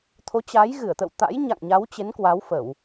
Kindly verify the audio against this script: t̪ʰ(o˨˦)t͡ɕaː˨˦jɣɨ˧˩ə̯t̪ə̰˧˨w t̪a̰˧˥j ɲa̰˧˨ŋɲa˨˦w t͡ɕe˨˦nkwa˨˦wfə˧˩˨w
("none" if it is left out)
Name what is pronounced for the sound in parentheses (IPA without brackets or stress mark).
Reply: o˨˦